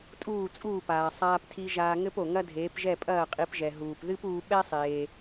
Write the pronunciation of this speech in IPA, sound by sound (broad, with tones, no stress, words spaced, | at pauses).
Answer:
tʼuː˥˩t͡sʼuː˥˩paː˩ sˤaː˧ptʰi˧ ʒaː˧ŋɘ˥p o˩ŋɐ˥dʱeː˩˥p ʒɛ˥˩pʼɐː˥˩qʼi˩˥pʒɛ˩ ɦuː˩pðɨ˥puː˧ ɓɛ˥sˤeː˩